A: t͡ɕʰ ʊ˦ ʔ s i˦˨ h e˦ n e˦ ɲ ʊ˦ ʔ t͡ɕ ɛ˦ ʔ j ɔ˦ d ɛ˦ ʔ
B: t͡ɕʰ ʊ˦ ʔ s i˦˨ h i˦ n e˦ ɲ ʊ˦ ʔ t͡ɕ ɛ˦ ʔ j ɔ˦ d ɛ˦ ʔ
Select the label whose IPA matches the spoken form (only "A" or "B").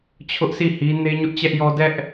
B